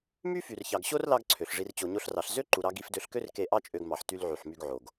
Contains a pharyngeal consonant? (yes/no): yes